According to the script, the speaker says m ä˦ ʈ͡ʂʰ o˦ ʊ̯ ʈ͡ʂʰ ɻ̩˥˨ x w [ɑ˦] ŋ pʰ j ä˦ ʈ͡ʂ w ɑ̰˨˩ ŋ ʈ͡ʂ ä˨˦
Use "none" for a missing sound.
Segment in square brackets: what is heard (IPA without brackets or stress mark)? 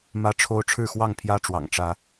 ɑ˥˨